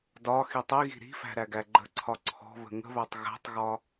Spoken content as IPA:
dɒ xitˤiɣi̤ ɾi̤fæ̤ ɾæɡæɡ͡ǃə̤ǀʰɒ ǀʰɔ̤βə̤ ŋə̤βætˤ ɣæ̤tˤɣɒ

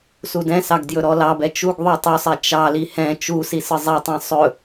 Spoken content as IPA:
sudɛ̃sɑɡ djɵɾɔlɑbɛ t͡ʃuɡðˤu tˤusˤɛ t͡ʃɑli hɛ̃ t͡ʃusi sɯzˤɛtˤɛ̃ sˤɵ

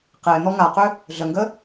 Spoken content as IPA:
qɪː n̪ɔŋaqʏ | ɮəŋɡə

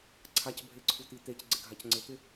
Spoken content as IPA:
ǀʰacbʱeǀʰut̪i t̪ecɡ͡ǀɪɡʱac ŋ͡ǀɪt̪ɪ

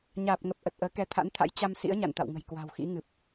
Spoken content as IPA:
ɲaː˨˩p̚ŋə˨˩p̚ ʔə˨˩t̚ʔəː˨˦ kɛ˨˦t̪ʰa̰˧˥nt̪ʰa̰˧˥j t͡ɕa˧m sḭ˧˥ə̯ɲa̰˧˨nt̪a̰˧˨wŋə̤˨˩j kwa̤˨˩wxḭ˧˥ŋɨ˨˩p̚

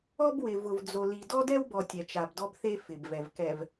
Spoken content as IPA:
ɔ˦bwɪ˨ vʊ˨vd͡zo˨li˨ dɔ˦dɛ˦wbɔ˨ tʲɛ˨t͡ʃa˨bdɔ˦bθe˦ fɪ˨bvɛ˨v kɛ˨v

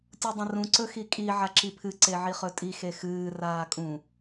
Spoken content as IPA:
tʲudˤɐ̃rũ ǀɵxikʼi ʕaǁipʰɨ ǀeʕiχɵtʼi xexɨː raːkʼũ

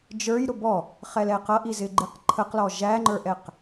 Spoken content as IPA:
d͡ʒə˞j ɾʊbɔ | χɛlɛqʌʔi zɪɡ͡ǃiqǃʰəqlɔ ʒæŋ͡ǃə˞ʔɛq

